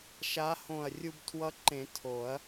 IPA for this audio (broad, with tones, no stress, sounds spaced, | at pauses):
ʃ a˧˥ h õ˧˩ ɐ̯ rʲ u˧ b tʰ w ʌ˧˥ ǃ ẽ˨˩˦ tʰ o˨˩˦ ɐ̯